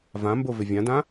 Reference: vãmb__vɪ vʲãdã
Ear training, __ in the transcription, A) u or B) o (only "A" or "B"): B